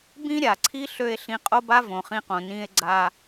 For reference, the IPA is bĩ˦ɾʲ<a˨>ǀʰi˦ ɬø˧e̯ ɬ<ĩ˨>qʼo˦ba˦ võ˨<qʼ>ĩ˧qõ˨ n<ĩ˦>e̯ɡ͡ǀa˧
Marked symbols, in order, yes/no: yes, no, no, no

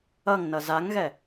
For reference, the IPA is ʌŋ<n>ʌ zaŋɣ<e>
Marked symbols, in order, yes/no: yes, no

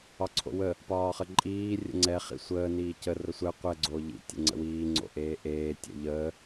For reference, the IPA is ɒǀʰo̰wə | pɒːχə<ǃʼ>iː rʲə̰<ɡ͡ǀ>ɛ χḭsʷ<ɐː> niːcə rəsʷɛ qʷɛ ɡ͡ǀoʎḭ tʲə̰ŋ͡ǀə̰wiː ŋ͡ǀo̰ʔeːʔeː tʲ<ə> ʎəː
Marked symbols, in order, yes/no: yes, no, no, no

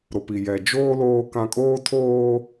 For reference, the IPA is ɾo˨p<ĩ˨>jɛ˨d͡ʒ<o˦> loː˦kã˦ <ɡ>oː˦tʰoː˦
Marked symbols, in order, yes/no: no, no, no

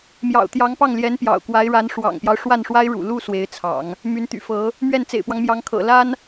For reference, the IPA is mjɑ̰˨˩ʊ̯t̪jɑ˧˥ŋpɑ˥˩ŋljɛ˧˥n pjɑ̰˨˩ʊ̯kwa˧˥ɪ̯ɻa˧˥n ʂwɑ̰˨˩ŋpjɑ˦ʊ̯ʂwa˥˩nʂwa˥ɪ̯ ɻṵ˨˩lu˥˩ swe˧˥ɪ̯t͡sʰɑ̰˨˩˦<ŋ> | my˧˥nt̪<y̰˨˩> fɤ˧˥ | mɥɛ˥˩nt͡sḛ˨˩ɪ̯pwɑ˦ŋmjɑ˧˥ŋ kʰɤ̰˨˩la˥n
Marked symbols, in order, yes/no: yes, yes

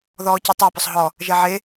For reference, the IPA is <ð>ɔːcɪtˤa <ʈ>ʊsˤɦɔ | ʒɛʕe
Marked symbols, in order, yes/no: yes, no

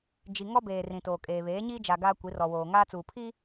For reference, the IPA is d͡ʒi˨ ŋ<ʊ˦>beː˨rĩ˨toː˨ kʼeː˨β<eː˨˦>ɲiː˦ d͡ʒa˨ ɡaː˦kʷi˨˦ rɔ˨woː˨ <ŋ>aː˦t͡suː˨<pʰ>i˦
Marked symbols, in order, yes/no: no, yes, yes, yes

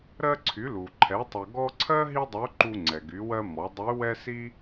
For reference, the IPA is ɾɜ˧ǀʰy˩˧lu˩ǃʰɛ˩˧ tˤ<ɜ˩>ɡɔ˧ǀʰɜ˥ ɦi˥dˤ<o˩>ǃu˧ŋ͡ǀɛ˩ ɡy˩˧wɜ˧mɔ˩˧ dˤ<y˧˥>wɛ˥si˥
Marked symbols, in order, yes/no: yes, no, yes

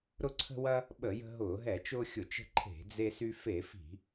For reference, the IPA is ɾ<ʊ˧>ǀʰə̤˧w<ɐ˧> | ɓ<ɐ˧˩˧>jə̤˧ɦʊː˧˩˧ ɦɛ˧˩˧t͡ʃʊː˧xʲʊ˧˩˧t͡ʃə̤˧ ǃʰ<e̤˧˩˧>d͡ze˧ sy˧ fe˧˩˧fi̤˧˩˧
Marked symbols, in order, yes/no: yes, yes, no, yes

